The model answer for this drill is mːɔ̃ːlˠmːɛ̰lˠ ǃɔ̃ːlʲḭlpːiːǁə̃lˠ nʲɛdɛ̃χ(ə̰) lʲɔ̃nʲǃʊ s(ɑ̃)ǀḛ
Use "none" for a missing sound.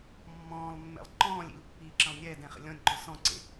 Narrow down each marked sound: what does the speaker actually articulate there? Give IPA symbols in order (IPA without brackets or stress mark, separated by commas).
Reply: ə̰, ɔ̃